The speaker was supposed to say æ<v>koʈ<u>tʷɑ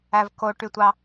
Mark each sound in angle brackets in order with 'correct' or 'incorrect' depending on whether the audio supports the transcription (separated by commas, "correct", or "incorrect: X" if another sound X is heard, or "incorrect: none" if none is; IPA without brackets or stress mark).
correct, incorrect: y